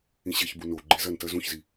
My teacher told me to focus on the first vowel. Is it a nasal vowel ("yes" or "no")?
yes